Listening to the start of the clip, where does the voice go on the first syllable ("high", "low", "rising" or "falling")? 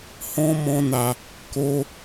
high